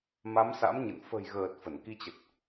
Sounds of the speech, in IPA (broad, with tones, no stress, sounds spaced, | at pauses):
m a˨˦ m s a̰˧˥ m ɲ ə̰˧˨ n f ə̤˨˩ j ɣ əː˨˩ t̚ f ə˧˩ n k i˧ t͡ɕ ə˨˩ t̚